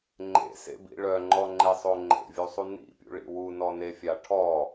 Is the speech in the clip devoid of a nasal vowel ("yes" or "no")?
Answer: yes